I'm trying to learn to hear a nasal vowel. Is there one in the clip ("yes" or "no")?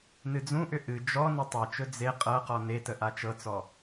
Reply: yes